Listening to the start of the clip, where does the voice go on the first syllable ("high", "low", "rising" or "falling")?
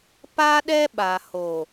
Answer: high